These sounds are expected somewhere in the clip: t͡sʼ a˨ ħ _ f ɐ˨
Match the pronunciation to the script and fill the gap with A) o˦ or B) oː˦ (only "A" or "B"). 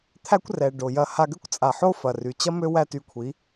A